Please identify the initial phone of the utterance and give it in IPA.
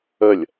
ə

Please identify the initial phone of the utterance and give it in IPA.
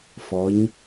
f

